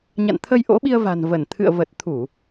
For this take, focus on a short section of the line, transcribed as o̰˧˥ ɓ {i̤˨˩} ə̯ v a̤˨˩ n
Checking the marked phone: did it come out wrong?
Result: yes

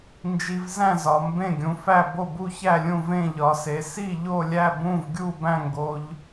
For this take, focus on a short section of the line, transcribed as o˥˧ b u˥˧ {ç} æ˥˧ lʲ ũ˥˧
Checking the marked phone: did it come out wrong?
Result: no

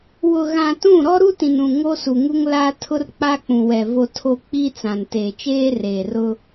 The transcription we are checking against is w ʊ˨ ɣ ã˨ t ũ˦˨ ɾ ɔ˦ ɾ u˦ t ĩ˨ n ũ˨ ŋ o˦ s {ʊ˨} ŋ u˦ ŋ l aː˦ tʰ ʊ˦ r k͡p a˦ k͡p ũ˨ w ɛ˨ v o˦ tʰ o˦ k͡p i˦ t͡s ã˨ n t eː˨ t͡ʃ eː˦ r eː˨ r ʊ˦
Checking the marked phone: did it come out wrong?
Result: yes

